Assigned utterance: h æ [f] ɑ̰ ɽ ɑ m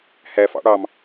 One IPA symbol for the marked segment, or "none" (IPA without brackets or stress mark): f